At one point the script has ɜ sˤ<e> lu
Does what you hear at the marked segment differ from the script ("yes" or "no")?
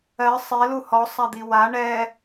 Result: yes